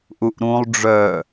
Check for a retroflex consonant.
present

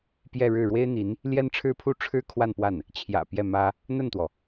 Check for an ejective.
absent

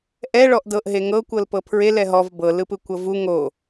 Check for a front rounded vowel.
absent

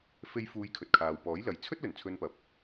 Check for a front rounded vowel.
absent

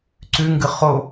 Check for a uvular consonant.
present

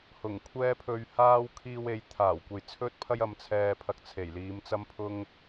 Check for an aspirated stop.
present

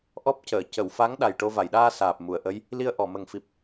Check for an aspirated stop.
absent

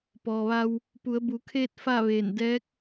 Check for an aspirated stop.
present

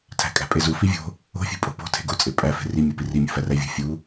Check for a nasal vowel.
absent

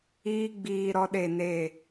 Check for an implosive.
present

